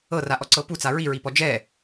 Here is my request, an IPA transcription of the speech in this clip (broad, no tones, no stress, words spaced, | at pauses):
ɤra ʔɔǀɤpu t͡saɹiɹipɔ d͡ʒɛ